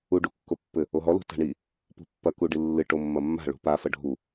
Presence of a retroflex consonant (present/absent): present